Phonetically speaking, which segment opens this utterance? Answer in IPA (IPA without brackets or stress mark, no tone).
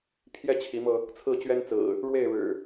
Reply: pʰ